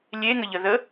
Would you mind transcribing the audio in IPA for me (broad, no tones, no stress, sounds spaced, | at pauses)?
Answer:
lʲ e ŋ ə ʎ ə ð ə